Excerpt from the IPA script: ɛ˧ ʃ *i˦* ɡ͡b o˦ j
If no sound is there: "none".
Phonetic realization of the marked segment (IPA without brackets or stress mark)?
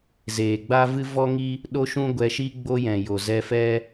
i˦